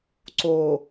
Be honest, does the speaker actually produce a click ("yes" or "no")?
yes